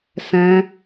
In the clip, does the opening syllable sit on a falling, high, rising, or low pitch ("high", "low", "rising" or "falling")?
high